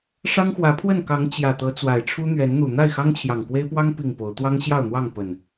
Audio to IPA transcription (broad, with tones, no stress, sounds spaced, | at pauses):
ʂ ɑ˦ ŋ x w ä˨˦ pʰ w ə˥˨ n k ɑ˨˦ ŋ t͡ɕ j ä˨˩ t̪ ɤ˨˦ t͡s w a˨˩ ɪ̯ ʈ͡ʂʰ u˦ n̪ ɥ ɛ˨˦ n n̪ u˨˩ n̪ a˥˨ ɪ̯ x ɑ˦ ŋ t͡ɕʰ j ɑ˨˩ ŋ k w e˦ ɪ̯ p w ɑ˦ ŋ p i˥˨ ŋ p o˨˦ ʊ̯ t̪ w ɑ˦ ŋ ɕ j ɑ˥˨ ʊ̯ n̪ w ɑ˥˨ ŋ p ə˨˩ n